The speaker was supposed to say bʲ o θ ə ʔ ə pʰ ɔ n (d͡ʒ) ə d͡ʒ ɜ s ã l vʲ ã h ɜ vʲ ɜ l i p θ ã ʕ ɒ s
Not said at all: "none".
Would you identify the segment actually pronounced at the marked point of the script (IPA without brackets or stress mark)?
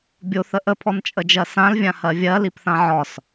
t͡ʃʼ